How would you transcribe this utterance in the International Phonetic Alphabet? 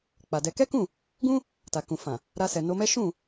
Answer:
k͡p a˨ d ɛ˧ k ɛ˦ k ũ˦˨ | ɡ ũ˦ | t a˨ k ũ˨ f ã˨ | ɾ a˧ s ɛ˨ n o˧ m ɛ˦ ʃ ũ˦˨

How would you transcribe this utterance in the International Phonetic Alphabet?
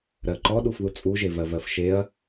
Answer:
ɾ ɜ ǃ ɔ ɗ u f ð u t͡sʼ u ʒ e v ɜ v ɜ f ʃ e ɐ̯

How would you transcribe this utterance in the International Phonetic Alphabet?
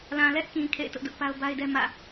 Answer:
l ã˨ l ɛ˦ ʔ k ĩ˨ kʰ ḛ˦˨ ɪ̯ t ʊ˦ ʔ d ʊ˦ ʔ p a˦ ʊ̯ b a˦ ɪ̯ d ɛ˦ m ä̰˦˨

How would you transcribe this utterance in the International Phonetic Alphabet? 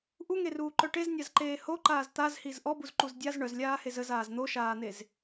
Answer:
ʔ u ŋ e r uː ǃ œ ʈ e z nʲ a z ǃ eː h o ǃ aː z t̪ a z h i z ʔ ɔ b u z ǃ u z dʲ a z ɳ œ z lʲ aː h e z ə z aː z n̪ o ʃ aː n̪ e z

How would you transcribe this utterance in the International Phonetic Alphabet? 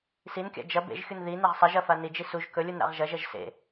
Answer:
s i n kʲ a̰ d͡ʒ ɐ b ḛ ʒ xʲ u n ð i n e ʁ sˤ ɐ ʒ ɐ f a n i d͡ʒ i s u ʒ k ɵ lʲ u n ɾ a̰ ʁ ʒ ɐ ʒ ɐ ʒ s ḛ

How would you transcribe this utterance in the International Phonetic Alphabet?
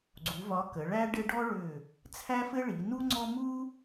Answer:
ɡ͡ǀ u˨˦ v ɒ˨˦ k ə˨˦ ɭ æ˥ ɖ ɘ˥ ɖ ɔ˥ ɭ ʏ˦˨ | t͡sʰ æ˥ f ɘ˥ ɭ i˨˦ n u˥ ŋ͡ǀ ɔ˥ m u˥

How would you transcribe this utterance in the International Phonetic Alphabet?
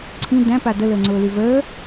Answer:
ǀʰ ĩ d æ̃ p a d ə l əː ŋ͡ǀ ʊː l y v əː

